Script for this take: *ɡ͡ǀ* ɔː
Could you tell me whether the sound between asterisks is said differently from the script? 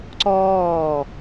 yes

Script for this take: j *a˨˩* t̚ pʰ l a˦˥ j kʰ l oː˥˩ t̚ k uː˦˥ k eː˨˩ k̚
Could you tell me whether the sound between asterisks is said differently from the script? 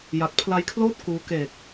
no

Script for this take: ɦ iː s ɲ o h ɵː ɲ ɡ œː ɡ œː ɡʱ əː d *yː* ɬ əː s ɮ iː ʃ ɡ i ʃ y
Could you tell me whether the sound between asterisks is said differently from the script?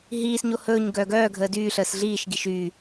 no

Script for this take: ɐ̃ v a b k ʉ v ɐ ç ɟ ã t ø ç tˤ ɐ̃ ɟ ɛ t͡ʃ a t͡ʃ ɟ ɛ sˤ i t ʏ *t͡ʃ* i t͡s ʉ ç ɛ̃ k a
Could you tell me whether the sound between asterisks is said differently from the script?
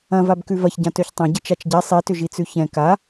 yes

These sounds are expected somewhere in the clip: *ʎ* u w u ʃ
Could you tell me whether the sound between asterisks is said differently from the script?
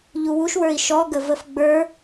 no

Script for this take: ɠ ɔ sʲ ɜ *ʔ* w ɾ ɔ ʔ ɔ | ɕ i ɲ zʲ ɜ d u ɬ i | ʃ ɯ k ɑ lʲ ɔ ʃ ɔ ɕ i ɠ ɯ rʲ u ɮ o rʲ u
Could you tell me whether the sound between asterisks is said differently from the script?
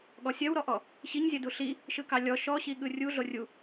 yes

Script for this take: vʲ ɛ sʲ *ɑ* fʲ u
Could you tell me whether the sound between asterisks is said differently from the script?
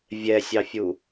no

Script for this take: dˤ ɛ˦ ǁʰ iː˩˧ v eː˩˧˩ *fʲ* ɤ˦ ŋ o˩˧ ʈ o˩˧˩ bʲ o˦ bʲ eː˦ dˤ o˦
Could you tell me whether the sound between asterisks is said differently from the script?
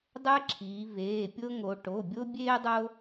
yes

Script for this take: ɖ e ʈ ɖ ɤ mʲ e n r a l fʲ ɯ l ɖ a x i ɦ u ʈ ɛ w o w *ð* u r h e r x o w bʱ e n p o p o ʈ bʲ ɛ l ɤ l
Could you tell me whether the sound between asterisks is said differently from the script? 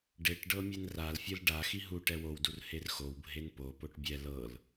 yes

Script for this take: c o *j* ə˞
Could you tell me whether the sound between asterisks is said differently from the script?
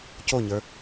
yes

